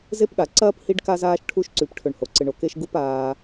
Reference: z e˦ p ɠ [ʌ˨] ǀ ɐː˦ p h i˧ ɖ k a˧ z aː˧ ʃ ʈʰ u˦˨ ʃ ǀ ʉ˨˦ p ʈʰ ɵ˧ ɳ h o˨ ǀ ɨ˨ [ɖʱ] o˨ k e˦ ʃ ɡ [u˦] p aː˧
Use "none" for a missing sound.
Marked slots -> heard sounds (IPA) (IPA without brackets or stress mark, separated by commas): a˨, ɳ, u˦